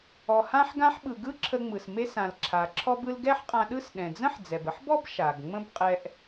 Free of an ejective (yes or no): no